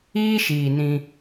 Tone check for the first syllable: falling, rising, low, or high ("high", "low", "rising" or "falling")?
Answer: high